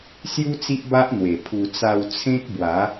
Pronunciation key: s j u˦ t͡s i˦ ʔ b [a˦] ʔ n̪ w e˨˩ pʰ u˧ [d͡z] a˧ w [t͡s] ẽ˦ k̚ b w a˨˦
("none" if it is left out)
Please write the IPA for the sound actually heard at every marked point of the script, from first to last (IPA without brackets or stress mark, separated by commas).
a˦, t͡s, t͡sʰ